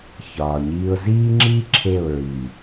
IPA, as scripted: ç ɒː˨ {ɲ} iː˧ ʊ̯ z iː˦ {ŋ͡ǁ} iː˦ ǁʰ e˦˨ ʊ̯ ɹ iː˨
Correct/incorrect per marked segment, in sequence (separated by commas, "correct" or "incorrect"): correct, correct